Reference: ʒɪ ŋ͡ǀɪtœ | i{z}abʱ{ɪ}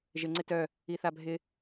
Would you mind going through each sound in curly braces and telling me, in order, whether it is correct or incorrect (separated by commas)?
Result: incorrect, correct